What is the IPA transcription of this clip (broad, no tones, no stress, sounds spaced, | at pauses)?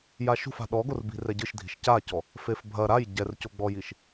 j a ʃ ṳ f a̤ ɗ ɔ ɡ o r b i̤ r ɛ ɟ ɨ ʃ dʱ i̤ ʃ c a c ɔ | f e f bʱ ɐ ɾ a j ɟ ɛ r c o ɡ͡b ɔ j i ʃ